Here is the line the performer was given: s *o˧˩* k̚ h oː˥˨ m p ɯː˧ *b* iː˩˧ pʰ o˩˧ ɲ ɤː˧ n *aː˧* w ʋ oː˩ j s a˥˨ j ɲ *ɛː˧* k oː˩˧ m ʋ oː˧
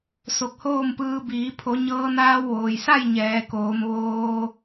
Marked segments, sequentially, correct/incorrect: correct, correct, correct, incorrect: ɛː˩˧

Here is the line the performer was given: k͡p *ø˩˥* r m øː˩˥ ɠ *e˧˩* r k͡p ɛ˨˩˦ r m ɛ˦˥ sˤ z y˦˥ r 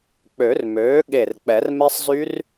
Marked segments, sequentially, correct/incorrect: incorrect: ø˨˩˦, correct

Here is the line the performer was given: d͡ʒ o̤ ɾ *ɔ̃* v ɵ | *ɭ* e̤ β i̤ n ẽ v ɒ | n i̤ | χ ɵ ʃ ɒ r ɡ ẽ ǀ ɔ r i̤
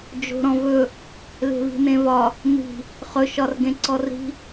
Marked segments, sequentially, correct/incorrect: correct, incorrect: l

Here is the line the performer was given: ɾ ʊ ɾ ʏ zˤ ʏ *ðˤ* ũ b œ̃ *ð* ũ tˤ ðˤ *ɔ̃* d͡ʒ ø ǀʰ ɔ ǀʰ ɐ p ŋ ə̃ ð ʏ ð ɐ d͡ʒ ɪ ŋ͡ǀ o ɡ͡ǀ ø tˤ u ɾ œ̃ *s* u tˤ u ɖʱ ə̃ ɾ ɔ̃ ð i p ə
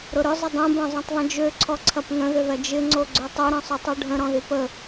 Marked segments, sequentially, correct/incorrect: incorrect: dˤ, incorrect: zˤ, incorrect: ə̃, incorrect: sˤ

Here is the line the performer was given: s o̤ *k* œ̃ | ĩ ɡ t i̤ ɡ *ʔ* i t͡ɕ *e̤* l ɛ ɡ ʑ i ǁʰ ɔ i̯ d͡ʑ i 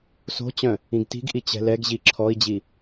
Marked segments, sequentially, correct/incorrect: incorrect: t͡ɕ, correct, incorrect: ɛ̤

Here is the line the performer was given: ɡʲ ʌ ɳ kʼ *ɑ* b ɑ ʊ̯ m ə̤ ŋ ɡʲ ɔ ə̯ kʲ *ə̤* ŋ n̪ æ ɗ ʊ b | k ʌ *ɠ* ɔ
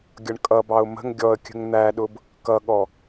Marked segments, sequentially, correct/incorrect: incorrect: ʌ, correct, correct

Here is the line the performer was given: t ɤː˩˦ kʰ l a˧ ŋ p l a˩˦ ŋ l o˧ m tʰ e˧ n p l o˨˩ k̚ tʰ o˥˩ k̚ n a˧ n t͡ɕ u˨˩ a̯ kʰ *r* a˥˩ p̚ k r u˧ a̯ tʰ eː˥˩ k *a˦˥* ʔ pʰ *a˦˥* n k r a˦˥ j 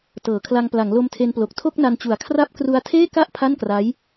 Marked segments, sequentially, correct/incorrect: correct, incorrect: a˥˩, incorrect: a˥˩

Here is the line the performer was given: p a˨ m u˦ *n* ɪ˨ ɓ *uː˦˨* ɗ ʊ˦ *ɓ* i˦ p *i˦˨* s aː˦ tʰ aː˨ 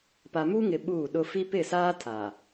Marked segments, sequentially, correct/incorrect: incorrect: ŋ, correct, incorrect: f, incorrect: ɪ˦˨

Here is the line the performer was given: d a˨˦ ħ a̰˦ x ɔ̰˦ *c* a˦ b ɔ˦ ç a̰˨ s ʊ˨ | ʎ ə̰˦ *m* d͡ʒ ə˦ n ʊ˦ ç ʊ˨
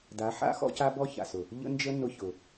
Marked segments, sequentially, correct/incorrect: correct, incorrect: n

